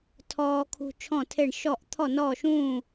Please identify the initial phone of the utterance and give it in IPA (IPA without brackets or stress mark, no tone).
tʰ